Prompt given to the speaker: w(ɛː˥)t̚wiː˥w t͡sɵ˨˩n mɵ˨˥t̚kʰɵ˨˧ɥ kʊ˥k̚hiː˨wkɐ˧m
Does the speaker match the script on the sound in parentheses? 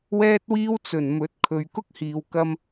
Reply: yes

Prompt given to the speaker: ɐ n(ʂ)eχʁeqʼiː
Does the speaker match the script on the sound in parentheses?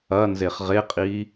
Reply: no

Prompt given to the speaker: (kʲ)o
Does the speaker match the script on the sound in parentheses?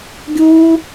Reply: no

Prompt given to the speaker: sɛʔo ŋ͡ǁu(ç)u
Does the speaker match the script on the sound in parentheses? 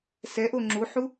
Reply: no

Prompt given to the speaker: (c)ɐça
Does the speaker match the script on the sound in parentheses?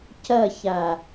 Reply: yes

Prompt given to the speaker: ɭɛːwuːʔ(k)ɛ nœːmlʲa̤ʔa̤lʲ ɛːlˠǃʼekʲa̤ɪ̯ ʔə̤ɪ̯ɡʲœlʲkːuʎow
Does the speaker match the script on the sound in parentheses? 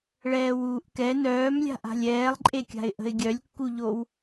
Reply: yes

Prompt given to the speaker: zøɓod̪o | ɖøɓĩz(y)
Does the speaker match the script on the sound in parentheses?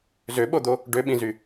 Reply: yes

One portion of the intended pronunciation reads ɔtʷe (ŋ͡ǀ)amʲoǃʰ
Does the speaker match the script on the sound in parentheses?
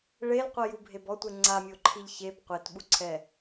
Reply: yes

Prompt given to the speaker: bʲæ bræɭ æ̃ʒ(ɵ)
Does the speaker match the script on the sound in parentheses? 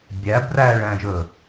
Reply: yes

